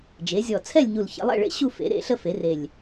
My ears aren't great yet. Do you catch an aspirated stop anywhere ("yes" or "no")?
yes